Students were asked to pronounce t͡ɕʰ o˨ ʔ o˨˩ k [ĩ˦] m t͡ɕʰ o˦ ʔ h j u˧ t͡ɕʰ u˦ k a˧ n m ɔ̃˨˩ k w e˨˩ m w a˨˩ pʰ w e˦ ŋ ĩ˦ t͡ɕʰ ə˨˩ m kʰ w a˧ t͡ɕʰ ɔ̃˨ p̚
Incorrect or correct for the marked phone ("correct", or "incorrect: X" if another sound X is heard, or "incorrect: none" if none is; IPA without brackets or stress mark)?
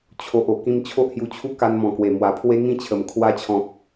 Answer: incorrect: ĩ˧